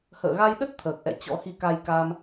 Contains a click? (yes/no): no